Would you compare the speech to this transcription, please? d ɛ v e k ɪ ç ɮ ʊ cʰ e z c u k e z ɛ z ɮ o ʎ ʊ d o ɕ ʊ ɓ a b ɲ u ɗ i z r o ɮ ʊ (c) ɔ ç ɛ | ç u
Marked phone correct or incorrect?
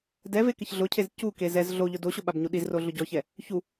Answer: incorrect